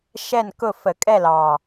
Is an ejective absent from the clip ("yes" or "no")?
no